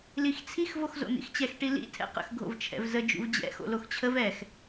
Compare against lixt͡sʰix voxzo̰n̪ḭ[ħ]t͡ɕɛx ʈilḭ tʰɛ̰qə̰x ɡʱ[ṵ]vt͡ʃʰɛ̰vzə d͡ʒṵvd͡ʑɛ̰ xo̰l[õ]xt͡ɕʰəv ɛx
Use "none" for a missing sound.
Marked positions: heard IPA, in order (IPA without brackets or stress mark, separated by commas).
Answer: x, o̰, o